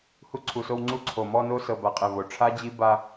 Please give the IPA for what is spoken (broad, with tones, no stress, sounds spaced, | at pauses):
h u˧ ǀʰ u˨ s o˧ w ŋ͡ǀ u˧ ǀʰ o˨ m ɔ˧ n o˧ s ɤ˨ b a˨ qʼ ɛ˨ v o˨ ʈ͡ʂʰ a˦ d͡ʑ i˦ b a˧